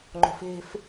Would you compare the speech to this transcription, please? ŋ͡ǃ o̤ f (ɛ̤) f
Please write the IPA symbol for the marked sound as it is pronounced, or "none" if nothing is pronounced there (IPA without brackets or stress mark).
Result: e̤